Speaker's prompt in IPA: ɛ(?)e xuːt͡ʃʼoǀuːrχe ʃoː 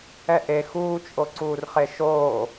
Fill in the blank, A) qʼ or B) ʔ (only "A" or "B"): B